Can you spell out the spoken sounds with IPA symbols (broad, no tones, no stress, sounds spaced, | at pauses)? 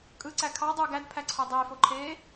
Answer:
kʼ ɯ ǀ æ kʰ ɑ dˤ u ɡ æ d pʰ æ ǀʰ o dˤ eː f o ǃʰ eː